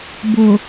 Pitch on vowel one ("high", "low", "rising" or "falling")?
low